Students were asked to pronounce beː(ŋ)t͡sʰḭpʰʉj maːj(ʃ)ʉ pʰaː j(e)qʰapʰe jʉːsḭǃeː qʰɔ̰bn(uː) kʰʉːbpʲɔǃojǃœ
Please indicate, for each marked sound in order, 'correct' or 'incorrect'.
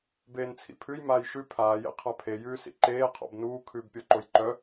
incorrect: n, correct, incorrect: ḛ, correct

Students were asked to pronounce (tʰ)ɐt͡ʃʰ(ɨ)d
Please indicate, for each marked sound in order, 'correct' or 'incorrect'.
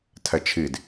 correct, correct

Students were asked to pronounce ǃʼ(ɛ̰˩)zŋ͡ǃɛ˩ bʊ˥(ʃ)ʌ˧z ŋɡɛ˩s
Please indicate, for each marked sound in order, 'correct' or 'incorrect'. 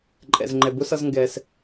correct, incorrect: s

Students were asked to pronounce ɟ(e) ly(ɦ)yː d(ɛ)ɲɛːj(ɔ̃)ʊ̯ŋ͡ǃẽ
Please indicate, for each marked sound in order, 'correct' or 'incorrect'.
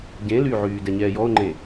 incorrect: ẽ, incorrect: ʕ, correct, incorrect: ɔ

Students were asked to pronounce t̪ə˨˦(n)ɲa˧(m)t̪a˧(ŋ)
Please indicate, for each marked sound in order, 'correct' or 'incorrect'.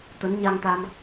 correct, incorrect: ŋ, incorrect: m

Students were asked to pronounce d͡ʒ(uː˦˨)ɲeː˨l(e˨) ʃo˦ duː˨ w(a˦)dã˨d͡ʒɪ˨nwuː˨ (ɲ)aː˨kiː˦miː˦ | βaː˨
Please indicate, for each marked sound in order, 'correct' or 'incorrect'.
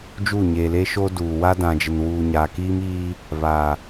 correct, incorrect: e˦, correct, correct

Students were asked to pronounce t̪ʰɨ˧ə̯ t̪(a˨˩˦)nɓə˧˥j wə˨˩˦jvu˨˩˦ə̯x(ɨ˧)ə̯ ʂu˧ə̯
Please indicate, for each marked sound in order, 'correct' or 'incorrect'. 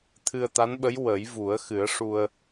incorrect: a˧˥, incorrect: ɨ˨˩˦

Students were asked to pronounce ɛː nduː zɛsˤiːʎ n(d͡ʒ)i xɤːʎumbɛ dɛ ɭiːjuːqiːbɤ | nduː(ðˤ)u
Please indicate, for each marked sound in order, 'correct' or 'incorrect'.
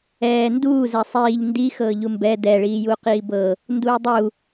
incorrect: d, incorrect: dˤ

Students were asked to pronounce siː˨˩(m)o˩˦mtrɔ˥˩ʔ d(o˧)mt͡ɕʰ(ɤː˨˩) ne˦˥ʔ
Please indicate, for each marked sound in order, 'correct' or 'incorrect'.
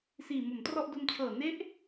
correct, correct, correct

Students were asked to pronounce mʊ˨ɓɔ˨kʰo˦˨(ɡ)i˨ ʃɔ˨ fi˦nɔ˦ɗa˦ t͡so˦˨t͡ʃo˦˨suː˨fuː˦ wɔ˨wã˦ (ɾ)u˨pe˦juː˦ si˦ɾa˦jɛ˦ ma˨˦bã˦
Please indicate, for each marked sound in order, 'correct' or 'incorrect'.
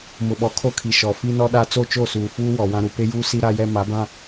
incorrect: kʰ, correct

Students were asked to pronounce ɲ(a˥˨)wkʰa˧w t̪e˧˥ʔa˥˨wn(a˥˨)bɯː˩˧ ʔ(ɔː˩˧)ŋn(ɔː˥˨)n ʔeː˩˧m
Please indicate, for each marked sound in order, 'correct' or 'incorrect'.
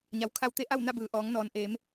incorrect: a˩˧, correct, correct, incorrect: ɔː˩

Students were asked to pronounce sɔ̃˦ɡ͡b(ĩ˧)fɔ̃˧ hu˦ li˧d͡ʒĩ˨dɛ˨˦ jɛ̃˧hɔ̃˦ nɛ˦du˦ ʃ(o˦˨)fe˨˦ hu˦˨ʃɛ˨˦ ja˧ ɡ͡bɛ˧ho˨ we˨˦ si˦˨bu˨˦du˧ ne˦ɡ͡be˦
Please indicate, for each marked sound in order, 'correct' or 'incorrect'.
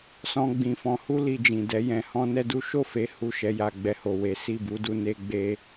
correct, correct

